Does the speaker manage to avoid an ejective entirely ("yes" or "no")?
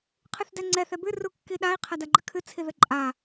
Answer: no